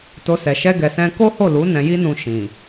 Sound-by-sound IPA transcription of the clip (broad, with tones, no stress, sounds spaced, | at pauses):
t o˧ s ɛ˨ ʃ ɛ˧ ɡ ɛ˨ s ɛ̃˧ k o˦ h o˦˨ l u˨˦ n ɛ̃˧ j i˦ n ũ˧ ʃ ĩ˨